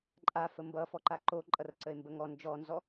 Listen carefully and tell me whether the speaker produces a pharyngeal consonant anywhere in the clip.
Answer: no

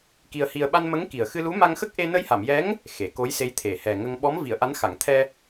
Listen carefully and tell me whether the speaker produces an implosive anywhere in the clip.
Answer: yes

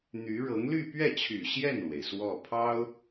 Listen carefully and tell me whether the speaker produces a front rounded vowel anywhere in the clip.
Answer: yes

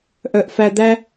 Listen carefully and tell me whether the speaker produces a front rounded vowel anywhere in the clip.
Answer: yes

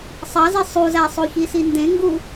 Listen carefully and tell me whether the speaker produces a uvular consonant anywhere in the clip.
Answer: no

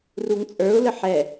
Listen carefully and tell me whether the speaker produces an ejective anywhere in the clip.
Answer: yes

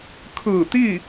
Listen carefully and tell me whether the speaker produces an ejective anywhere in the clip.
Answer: no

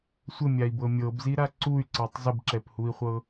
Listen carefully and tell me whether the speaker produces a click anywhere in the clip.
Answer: yes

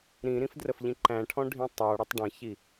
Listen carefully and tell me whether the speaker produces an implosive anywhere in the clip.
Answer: no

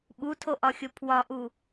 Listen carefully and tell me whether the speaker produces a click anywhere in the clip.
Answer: no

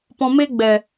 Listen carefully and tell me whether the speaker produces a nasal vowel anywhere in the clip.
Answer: yes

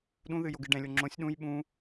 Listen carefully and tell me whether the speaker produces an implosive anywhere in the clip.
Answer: yes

